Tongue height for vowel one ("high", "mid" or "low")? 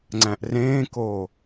low